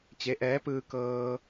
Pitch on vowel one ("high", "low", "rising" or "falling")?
rising